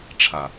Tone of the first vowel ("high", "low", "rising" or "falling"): low